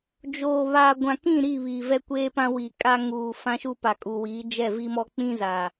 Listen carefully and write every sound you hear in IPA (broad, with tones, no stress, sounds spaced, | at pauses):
d͡ʒ oː˨ β aː˨ ɡʷ ã˨ k ĩ˦˨ ɾ i˦˨ β iː˨ v ɛ˦ kʷ eː˦ p ã˦ w i˨ kʼ a˦ ŋ uː˨ f ã˦ ʃ u˦ p a˨ kʼ u˨ w iː˨˦ d͡ʒ ɛ˦˨ v i˦ m ɔ˦ k͡p ĩ˦ z a˨